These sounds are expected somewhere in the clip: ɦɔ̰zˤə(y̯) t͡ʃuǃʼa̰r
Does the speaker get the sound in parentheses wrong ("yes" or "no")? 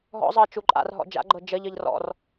yes